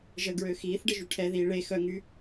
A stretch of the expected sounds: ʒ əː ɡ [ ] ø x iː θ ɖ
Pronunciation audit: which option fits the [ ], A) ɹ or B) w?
A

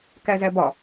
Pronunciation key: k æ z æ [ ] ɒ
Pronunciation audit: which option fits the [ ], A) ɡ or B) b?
B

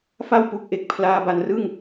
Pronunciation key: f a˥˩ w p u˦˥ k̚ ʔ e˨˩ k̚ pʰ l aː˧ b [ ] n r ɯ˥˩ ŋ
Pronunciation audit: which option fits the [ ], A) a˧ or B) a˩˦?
A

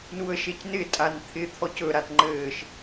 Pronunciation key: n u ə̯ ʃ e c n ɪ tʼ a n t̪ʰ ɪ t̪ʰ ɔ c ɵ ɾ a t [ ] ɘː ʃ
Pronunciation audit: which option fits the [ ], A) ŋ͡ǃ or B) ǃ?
A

